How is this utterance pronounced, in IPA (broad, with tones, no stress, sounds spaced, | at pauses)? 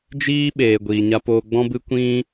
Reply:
d͡ʒ iː˦ ɓ eː˨ ɡʷ iː˨ ɲ a˧ p oː˧ ɡ͡b ɔ̃˦ b ɨ˦ kʷ ĩ˦